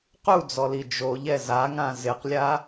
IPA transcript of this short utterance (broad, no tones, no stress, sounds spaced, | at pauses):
q u d͡z ɔ l i d͡ʒ o ʎ ɛ z a ŋ ã z ɪ q lʲ a